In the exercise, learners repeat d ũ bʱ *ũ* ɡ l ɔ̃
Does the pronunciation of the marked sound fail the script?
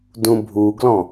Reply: yes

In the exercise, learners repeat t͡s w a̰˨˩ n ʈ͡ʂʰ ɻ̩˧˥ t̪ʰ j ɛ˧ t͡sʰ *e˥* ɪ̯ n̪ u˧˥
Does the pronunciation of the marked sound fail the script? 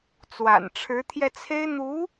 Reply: no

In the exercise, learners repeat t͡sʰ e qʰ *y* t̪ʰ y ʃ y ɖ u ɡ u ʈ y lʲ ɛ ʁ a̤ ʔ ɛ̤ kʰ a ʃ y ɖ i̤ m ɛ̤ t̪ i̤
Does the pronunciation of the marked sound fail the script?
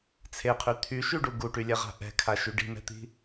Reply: no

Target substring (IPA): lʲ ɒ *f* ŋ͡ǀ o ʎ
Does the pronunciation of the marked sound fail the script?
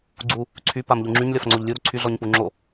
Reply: no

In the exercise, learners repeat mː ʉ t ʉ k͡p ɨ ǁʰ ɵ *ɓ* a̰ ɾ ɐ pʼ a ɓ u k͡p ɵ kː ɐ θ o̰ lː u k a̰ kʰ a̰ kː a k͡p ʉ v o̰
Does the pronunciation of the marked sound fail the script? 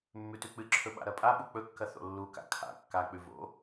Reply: no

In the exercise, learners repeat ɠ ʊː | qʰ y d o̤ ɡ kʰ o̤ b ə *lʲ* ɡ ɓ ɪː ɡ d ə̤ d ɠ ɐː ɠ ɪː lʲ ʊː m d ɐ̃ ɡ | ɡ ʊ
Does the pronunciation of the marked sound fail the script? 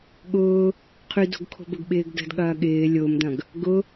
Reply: yes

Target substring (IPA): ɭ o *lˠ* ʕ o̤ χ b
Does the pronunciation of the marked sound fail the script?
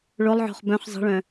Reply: no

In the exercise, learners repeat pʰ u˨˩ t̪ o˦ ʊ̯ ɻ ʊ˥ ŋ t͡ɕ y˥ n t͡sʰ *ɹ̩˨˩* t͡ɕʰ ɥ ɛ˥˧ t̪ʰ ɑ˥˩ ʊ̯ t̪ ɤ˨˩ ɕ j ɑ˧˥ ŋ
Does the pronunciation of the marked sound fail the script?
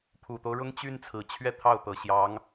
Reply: no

